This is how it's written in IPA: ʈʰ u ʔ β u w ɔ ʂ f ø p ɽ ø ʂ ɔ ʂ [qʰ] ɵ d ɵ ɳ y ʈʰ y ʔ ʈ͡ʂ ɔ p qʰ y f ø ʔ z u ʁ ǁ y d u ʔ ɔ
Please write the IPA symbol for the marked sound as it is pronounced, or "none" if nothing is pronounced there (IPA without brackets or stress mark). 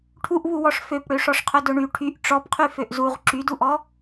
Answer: qʰ